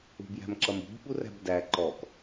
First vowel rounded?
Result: yes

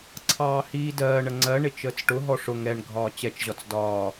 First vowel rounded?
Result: no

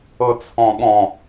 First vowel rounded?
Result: no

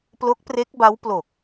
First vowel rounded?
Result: yes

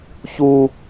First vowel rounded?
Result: yes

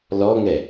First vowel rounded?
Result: yes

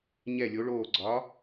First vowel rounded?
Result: no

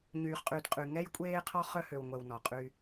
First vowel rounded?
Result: yes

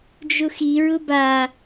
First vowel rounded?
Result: yes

